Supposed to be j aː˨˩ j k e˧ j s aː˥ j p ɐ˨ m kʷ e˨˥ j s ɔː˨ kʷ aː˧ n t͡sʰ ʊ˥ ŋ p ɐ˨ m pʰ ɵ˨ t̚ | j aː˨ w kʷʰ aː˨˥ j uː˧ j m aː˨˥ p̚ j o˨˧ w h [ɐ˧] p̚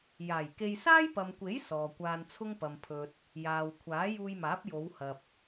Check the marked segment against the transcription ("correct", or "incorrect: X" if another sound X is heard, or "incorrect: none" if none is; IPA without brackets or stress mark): incorrect: ɐ˨